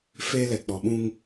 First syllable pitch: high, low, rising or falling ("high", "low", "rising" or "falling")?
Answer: high